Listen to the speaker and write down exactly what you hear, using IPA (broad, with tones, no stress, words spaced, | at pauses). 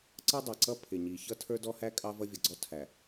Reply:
ǀʌ˦dˤɛ˨ǀʌ˦ pʰɪ˨ɲi˨ çʌ˦tʰə˞˦dɔ˦hæ˦ kʼɑ˦vʌ˦vʲʌ˨ɡ͡ǀɔ˦ tʰæ˨